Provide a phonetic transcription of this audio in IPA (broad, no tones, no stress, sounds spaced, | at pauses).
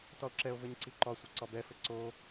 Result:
t ɒ o̯ ǁ ɛ o̯ v ɘ ɲ ǀ i ǃ ɒ sʷ ɘ ǀ ɒ b ɛ f ɘ ǀ o